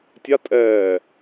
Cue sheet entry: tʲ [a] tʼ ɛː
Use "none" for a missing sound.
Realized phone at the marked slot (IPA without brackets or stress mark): a